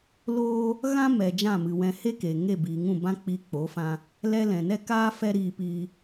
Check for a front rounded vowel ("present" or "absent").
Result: absent